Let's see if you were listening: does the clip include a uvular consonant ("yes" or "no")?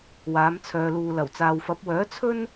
no